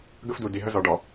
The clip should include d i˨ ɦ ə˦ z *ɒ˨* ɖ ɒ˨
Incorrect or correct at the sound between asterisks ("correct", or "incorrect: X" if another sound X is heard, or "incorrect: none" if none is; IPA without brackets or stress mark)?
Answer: correct